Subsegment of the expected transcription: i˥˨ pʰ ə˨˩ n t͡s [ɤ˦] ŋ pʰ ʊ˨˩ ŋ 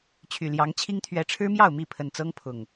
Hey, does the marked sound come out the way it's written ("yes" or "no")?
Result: yes